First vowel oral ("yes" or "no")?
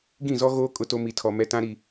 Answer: no